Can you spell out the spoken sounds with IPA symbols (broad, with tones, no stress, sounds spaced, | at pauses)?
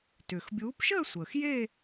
t ʏː˩ x bʲ uː˨˦ p ʃ əː˥˧ sʷ əː˩ x j e˥˧